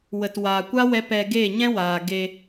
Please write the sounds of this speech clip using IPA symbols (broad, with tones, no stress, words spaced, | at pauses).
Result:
wə˨twaː˨kʷa˦ wɛ˦pɛ˧ ɡeː˦˨ɲɛ̃˦waː˨ ɡe˧